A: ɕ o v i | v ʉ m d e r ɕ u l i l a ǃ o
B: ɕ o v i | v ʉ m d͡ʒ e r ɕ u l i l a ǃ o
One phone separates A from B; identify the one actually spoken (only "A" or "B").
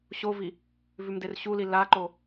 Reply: A